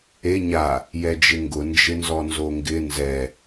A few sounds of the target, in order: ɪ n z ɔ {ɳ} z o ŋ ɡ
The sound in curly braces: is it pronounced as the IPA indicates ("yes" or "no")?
no